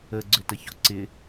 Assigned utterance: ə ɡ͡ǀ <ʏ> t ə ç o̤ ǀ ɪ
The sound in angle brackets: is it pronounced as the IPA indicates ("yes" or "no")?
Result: yes